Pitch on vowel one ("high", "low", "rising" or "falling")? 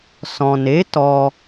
low